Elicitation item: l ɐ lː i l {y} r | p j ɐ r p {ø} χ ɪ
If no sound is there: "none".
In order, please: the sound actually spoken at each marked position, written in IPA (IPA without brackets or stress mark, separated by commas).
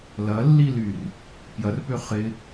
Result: y, ø